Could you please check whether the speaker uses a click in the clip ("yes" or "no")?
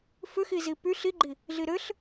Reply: yes